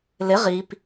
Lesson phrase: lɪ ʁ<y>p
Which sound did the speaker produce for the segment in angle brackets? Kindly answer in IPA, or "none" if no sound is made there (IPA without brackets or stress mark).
i